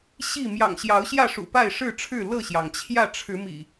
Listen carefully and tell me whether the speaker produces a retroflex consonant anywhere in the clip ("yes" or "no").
yes